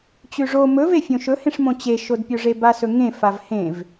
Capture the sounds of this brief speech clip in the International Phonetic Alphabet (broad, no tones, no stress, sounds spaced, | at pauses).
t͡ɕ ʉ ʐ o m ɵ v e fʲ õ ʃ ɵ h ẽ ʂ m õ t͡ɕ e ʃ o d pʲ o ʐ e b a s ɵ ŋ ẽ f a v h ẽ v